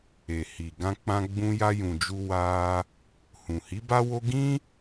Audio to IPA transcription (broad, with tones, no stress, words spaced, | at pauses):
e˨ hi˨ ɡã˧k͡pã˧ ɡ͡bũ˧ja˧jũ˨d͡ʒu˧ wa˧ | hũ˨hi˨˦ ba˦wo˦ ɡĩ˦